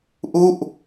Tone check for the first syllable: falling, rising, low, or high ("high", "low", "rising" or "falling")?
falling